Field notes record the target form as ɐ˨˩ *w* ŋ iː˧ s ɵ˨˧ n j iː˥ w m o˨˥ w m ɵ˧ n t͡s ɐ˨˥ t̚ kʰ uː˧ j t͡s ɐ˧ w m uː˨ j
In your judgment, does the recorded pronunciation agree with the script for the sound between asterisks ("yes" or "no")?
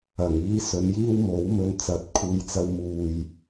no